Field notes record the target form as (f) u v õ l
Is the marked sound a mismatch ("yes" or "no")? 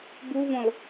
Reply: yes